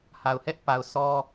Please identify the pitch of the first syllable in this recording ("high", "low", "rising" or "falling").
low